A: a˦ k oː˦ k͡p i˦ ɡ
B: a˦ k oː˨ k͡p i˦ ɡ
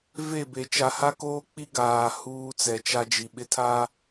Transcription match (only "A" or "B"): A